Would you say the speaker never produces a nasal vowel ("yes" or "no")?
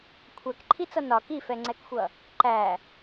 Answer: yes